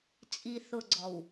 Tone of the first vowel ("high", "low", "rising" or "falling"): low